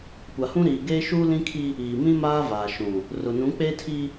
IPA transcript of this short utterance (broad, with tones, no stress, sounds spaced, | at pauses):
kʷ a˨ h ũ˦ ɾ iː˨ ɡ eː˦ ʃ uː˦ l ĩ˦ kʰ i˦ | iː˨ m ĩ˦ m aː˦ v aː˨ ʃ ũ˨ | r ʊ˨ n ũ˨˦ k͡p eː˦ tʰ iː˦